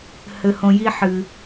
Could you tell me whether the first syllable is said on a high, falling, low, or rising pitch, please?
high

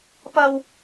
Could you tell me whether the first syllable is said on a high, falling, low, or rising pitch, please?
high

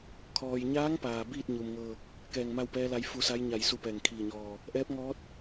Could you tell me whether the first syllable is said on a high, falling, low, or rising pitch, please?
low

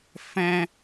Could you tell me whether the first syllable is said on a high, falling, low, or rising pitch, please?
high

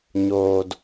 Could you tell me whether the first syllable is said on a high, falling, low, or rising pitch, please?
low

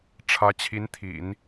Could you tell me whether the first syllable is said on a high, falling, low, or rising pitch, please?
rising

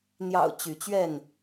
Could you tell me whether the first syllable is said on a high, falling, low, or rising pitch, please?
low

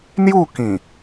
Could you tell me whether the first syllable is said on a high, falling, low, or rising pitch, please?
falling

